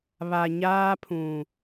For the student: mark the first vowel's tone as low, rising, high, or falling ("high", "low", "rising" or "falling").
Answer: low